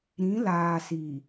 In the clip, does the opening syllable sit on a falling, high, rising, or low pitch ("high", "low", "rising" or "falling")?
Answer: rising